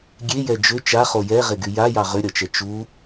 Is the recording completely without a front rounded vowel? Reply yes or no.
no